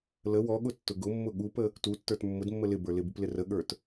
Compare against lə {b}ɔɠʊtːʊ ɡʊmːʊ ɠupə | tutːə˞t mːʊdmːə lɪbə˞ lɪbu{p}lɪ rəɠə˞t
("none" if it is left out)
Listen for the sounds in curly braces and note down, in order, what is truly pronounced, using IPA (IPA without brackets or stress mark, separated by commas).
w, p